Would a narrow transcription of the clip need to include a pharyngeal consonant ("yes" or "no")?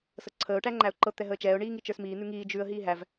no